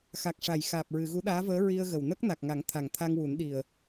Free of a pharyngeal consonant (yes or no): yes